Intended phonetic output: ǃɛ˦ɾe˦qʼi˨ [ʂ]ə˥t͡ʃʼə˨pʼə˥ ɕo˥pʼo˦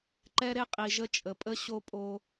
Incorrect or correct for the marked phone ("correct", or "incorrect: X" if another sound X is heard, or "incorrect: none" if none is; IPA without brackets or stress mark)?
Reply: incorrect: ʒ